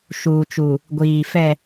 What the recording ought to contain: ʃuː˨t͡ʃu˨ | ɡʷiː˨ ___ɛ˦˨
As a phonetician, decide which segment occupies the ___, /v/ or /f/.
f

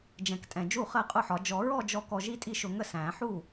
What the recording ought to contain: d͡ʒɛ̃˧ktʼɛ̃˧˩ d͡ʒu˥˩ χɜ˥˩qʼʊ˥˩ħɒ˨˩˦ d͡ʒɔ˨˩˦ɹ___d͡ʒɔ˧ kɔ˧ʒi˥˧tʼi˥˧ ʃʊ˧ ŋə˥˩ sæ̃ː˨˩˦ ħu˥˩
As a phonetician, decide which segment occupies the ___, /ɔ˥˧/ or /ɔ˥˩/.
ɔ˥˧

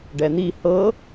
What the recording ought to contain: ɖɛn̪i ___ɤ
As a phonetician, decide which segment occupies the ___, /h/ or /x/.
h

